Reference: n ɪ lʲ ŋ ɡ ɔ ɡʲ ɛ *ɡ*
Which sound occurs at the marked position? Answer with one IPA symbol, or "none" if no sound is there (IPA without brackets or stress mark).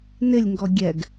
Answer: ɡ